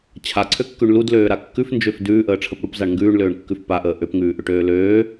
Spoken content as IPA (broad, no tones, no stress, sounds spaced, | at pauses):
t͡ɕʰ a ǀʰ ø kː ʉ ɳ l u d l øː ɾ a kː ʉ f n d͡ʒ ø f d ʉː ʔ əː ʈ͡ʂʰ ə p ɽ u p z a ɳ ŋ ɡ ʉː ɳ l øː ɳ kː ʉ f p a ʔ əː ʔ ø p ŋ ʉː ʔ ʏ ʈ øː l øː